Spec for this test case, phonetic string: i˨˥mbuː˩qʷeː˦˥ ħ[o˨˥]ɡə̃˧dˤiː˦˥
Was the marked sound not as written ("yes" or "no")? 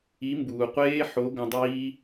no